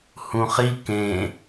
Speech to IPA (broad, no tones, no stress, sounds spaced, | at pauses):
h ũ χ i k ẽ